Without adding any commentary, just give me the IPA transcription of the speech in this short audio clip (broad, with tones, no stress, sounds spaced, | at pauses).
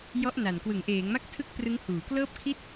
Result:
j ɔ˦˥ ʔ n a˨˩ n k w ɯ˩˦ ŋ ʔ eː˩˦ ŋ m a˦˥ k̚ tʰ ɯ˥˩ k̚ p r ɯ˦˥ ŋ h uː˩˦ k l ɤː˥˩ p̚ kʰ i˥˩ t̚